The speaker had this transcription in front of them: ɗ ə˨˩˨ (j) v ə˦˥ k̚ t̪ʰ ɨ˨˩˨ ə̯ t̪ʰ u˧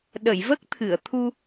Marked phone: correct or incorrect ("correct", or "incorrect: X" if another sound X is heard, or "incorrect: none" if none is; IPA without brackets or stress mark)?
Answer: correct